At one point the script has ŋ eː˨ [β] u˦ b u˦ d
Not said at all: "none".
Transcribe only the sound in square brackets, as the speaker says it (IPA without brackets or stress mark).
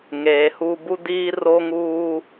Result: h